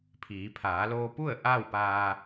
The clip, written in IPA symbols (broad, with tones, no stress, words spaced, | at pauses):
pʰiː˩˧pʰaː˩˧loː˧pu˥˨ə̯ ʔa˥˨wpaː˧